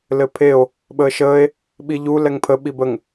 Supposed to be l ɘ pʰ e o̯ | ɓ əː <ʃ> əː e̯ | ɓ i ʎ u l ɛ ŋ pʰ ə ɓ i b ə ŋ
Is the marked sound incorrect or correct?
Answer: correct